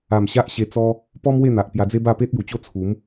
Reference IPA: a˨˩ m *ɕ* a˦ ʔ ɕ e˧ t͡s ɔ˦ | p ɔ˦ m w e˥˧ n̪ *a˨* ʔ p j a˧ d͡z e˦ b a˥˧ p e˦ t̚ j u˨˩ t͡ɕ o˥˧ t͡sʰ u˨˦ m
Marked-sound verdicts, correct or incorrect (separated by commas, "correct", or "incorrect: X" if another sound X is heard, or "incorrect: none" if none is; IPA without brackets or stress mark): correct, correct